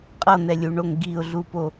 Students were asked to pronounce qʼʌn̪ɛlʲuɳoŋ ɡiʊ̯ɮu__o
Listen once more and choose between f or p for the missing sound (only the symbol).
p